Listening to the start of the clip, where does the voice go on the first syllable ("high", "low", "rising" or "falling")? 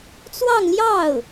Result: falling